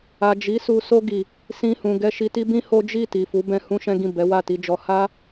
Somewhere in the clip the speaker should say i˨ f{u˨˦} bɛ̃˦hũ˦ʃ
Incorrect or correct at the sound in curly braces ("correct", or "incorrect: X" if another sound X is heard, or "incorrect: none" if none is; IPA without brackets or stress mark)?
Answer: correct